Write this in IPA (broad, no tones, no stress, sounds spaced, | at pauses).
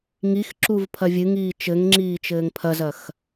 ŋ i x ǁ u v pʰ ɐ vʲ ɨ ŋ iː t͡ʃ ɘ ŋ ŋ͡ǁ iː t͡ʃ ɘː ŋ pʰ ɐ z ɐ x